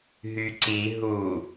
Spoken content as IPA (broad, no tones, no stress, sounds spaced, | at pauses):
ɦ y ǀ i ɦ u